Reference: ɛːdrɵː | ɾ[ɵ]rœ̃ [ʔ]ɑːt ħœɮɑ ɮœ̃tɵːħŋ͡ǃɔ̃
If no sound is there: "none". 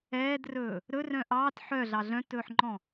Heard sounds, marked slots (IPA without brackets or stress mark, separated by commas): ɵ, ʔ